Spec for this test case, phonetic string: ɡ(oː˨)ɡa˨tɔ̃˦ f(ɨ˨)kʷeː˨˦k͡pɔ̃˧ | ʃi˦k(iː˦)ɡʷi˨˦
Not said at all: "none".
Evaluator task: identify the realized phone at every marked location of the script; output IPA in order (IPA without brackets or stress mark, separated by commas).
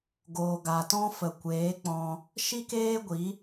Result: oː˨, ə˨, eː˦